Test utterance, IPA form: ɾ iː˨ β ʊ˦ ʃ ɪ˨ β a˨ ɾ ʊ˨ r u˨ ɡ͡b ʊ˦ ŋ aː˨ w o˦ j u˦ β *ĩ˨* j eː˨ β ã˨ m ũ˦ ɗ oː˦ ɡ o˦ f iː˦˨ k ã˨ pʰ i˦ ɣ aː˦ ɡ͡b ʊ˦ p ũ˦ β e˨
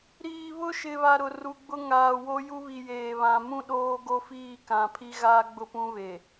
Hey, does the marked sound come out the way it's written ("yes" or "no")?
no